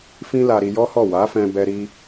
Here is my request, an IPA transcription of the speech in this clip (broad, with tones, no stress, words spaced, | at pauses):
fĩ˦la˧ ɾi˧jɔ˦hɔ˦˨ wa˨˦fɛ̃˧bɛ˧ ɾi˧